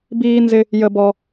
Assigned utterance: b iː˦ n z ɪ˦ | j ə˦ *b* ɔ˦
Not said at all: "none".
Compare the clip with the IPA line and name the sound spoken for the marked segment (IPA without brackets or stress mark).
b